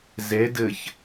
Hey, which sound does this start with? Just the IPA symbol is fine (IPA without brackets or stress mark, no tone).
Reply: z